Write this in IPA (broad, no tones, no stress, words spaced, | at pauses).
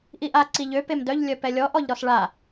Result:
ʔiʔa ǀiʎø pemdœʎ lʲœpɛlʲɔ ʔɔʎɾɔsɭa